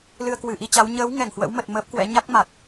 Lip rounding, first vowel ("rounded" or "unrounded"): unrounded